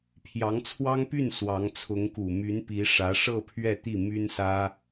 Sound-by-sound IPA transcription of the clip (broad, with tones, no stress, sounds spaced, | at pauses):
pʰ j ɑ˧˥ ŋ t͡sʰ w ɑ˥ ŋ p y˥˩ n s w ɑ˧˥ ŋ t͡sʰ ʊ˧˥ ŋ k u˨˩ m y˧˥ n p i˧˥ ʂ ä˧˥ ʂ ɤ˥˧ pʰ ɥ ɛ˥˧ t̪ i˥˩ m y˥ n s ä˥